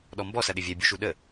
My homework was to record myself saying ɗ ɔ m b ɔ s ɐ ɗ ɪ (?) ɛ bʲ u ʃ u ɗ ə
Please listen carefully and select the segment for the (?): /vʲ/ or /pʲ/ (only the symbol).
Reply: vʲ